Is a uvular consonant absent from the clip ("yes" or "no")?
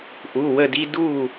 yes